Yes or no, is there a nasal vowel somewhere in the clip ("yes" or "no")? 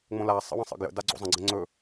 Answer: yes